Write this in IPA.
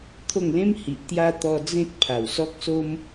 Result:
t̪ʰo˥˧ŋlẽ˦mhi˨ʔ t̪ja˧ t̪ɔ˧d͡zẽ˦t̚ pʰa˨˩wsɔ˦k̚so˦m

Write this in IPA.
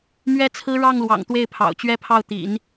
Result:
mɥɛ˥t͡sʰɹ̩˥ ɻɑ˥˩ŋlwɑ̰˨˩ŋ t̪we˥˩ɪ̯ pʰɑ̰˨˩ʊ̯t͡ɕɥɛ˥pʰɑ˥˩ʊ̯ t̪ḭ˨˩˦n

